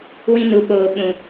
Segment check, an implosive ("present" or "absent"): present